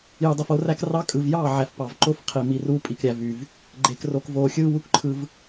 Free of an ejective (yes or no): no